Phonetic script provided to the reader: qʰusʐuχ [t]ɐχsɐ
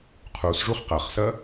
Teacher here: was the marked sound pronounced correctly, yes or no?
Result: no